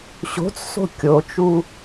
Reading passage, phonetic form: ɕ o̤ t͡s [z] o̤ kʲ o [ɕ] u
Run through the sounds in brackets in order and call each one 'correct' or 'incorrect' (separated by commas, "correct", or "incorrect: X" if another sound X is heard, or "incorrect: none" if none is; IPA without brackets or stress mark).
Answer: incorrect: s, incorrect: t͡ʃ